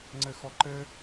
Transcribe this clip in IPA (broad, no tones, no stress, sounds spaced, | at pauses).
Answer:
ŋ͡ǀ ɘ x ɔ ǃ ɘ